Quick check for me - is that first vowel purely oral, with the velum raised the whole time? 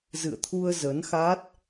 yes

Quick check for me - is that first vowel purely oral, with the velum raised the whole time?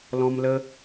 no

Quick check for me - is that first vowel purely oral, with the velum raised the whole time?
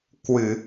yes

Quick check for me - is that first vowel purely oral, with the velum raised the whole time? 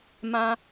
no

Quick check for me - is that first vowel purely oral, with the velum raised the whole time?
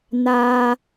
yes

